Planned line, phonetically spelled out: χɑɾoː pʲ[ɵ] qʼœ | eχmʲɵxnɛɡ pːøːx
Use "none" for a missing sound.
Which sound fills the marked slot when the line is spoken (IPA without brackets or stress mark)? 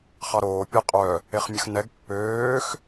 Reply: œ